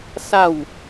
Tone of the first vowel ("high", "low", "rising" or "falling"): falling